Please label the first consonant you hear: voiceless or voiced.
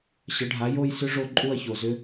voiceless